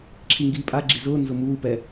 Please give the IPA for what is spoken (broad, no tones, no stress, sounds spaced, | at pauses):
ǁʰ i ŋ ɡ iː pʼ a ɡ͡ǁ i z ʊː n z ʊ m uː p ɛ